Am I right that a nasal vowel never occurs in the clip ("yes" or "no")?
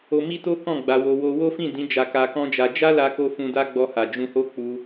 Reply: no